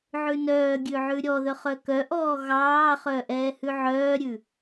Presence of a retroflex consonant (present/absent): absent